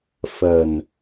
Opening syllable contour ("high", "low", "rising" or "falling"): low